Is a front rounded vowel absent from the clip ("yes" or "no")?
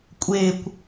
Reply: yes